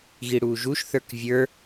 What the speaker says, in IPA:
ɣiɽuːʒuʃ θə˞kvʲə˞

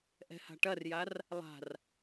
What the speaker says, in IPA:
ʔɛ̤ha̤ʈɐrjar | lˠa̤r

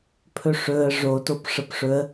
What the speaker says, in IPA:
pʰɵʂɵə̯ ʐo topʂəpʂɵə̯

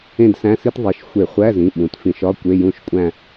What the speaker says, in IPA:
ẽ˥˧dsæ̃˧˥˧si˥t ðˤi˩˧˩ʃxʷe˧˩˧χʷæ˧˥˧zĩ˩˧˩ ɓũ˩˧˩tfĩ˧˩˧ʃ ɒ˧˥˧ kʷe˧˥˧jũ˥˧ʃkʷʼæ̃˥˧

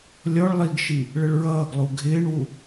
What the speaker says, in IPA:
lʲɔɭ lˠiɡʃi | ɭəɭɹʌːɡlˠu ɡʱɪːɳwu

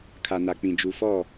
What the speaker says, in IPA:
kʰa˨na˨k͡pĩ˨ d͡ʒu˨fɔ˦˨

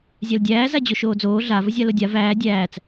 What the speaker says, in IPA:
zʲældʲæː zad͡ʑoʃoːd͡zoː ɮa vəzʲalodʲa væː dʲæːt͡s

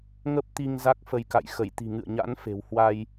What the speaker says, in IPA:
ŋə˦˥p̚t̪i˧ŋ za˦˥k̚fə˧jka̰˧˨j xə˧˩jt̪i̤˨˩ŋɨ̰˧˨ə̯ɲa̰˧˥n fe̤˨˩w hwa˧j

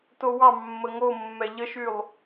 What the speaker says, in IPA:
towɑmːə ŋomːɛ ʎəʃylˠ

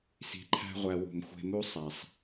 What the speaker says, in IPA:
si̤˧ǃʰæ̤˦ʁʷæ˧ wṳ˨mxʷe̤˧mu˦ sˤæ˨sˤ

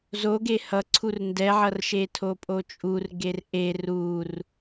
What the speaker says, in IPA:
zoɡe hʌǀʰur ndɛʕʌrʃe tʰopʼot͡ʃʼur ɡerʔer ur

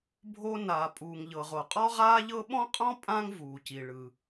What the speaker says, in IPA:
bʱo˥ naː˩ pʼuː˩ŋʎɤ˩ʁo˩ qʼɔ˥ʁaː˥ʎɤ˥ ɓɔ̃˥qʼɔ̃˥ pʼã˥ŋvuː˩ci˩ ɭɯ˩

